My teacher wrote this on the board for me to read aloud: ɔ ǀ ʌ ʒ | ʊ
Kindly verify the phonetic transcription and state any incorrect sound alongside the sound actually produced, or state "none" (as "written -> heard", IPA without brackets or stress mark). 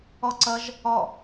ʊ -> ɔ